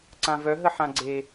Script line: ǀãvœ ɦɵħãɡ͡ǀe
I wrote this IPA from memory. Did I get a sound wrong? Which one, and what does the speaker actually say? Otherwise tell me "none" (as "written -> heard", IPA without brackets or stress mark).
ɵ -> ə